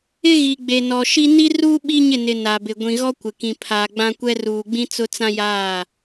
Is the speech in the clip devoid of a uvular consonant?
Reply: yes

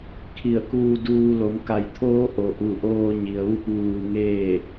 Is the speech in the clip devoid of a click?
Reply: yes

